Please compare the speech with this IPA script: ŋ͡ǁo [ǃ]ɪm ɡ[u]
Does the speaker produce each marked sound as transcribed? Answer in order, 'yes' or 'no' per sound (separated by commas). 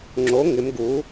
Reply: no, yes